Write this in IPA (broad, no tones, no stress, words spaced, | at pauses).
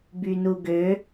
bynuɡø